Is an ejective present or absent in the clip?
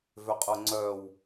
present